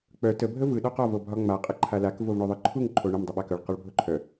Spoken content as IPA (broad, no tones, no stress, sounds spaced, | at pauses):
k͡p œ t ə bʱ ə v ɯ ɗ ɒ q ɒ v o bʱ ɒ ŋ͡m a qʼ ə ǃʰ a l a k v o v ɳ o ðˤ ɯ ǃʰ u ŋ ǃʰ o ɳ ə m dˤ ɯ ɓ a k œ ɭ q ɒ ɭ bʱ o ǃʰ œ